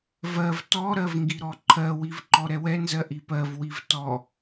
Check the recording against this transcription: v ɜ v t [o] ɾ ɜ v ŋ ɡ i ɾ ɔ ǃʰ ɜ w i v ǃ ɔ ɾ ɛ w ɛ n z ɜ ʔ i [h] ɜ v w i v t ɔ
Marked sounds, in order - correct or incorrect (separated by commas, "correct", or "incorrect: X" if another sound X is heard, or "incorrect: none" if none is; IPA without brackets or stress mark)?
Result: incorrect: ɔ, incorrect: p